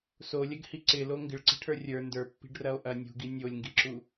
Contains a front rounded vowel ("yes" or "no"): no